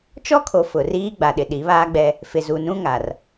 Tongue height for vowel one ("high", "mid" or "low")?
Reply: mid